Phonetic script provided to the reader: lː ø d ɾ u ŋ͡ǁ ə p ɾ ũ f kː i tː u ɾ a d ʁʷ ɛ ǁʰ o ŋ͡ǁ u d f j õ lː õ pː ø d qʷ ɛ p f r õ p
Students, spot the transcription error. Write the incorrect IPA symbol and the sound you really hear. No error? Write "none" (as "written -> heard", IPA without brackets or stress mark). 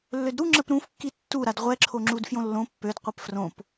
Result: none